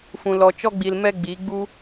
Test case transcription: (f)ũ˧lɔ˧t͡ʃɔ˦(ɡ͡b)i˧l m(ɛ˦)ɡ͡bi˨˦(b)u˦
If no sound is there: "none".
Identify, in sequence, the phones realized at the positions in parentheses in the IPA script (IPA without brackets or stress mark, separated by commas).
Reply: f, ɡ͡b, ɛ˦, ɡ͡b